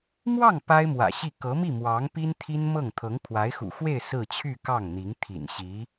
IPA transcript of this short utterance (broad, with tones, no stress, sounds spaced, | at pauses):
m w ɑ˥˩ ŋ p a˥ ɪ̯ m w ä̰˨˩ ɕ i˥˩ k ɤ˧˥ m i˥˩ m w ɑ˧˥ ŋ p i˥ n t̪ʰ i˥ n m ɤ˥˩ ŋ t̪ʰ ɤ˧˥ ŋ pʰ w a˧˥ ɪ̯ x ṵ˨˩ x w e˥˧ ɪ̯ s ɹ̩˥˧ t͡ɕʰ y˥˧ k ɑ˥˩ ŋ n̪ i˧˥ ŋ t̪ʰ ḭ˨˩ n ɕ i˧˥